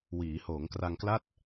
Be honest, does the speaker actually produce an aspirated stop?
no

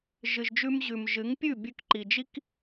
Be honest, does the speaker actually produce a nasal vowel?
no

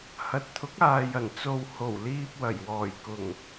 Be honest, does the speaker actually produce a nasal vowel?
no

